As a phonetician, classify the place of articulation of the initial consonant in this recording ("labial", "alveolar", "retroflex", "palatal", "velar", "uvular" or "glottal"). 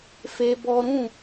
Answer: labial